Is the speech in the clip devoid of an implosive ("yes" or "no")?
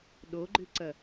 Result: no